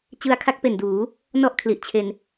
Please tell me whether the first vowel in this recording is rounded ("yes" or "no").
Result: no